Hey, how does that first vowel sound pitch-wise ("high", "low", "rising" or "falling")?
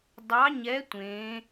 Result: rising